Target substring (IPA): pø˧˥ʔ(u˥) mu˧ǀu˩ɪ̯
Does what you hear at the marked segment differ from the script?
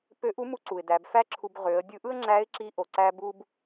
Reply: yes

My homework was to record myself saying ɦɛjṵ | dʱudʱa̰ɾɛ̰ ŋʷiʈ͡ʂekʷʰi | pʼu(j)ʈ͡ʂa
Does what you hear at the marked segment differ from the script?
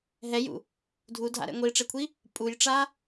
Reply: no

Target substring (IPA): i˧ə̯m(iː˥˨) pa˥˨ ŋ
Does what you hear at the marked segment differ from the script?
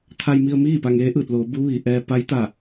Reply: no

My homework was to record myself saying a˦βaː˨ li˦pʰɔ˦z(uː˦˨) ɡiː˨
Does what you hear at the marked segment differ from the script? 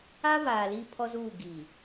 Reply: no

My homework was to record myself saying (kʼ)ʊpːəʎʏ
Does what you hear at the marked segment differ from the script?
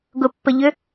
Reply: yes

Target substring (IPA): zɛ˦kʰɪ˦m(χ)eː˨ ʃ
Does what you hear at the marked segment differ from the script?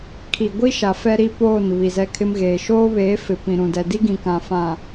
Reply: yes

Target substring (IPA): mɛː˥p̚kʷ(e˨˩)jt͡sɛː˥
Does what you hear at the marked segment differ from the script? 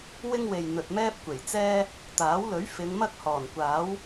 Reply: no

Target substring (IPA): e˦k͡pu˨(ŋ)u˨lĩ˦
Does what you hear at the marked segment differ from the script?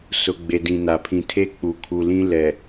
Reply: yes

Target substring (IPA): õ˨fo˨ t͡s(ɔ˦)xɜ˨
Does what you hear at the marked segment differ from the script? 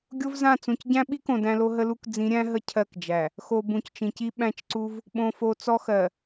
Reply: no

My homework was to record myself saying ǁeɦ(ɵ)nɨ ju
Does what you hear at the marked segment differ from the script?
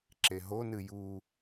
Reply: yes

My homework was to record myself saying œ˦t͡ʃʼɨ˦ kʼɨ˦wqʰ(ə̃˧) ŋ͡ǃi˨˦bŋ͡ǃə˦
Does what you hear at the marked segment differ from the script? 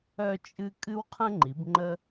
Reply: yes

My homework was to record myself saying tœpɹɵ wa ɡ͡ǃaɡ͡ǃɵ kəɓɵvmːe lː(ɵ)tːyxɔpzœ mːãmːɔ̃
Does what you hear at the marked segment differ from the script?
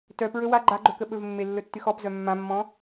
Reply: no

